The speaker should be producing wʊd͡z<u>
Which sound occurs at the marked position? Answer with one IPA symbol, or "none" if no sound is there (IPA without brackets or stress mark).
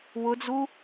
u